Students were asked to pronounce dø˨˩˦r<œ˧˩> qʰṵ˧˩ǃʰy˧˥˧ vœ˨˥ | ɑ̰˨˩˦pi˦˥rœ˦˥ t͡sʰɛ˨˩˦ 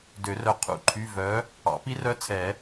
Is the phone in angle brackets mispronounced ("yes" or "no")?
no